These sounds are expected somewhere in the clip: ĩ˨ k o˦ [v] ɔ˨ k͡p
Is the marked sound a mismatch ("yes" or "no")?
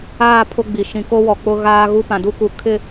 yes